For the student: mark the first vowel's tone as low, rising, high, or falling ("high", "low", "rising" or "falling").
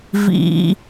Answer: low